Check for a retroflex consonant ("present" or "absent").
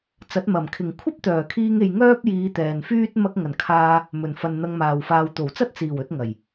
absent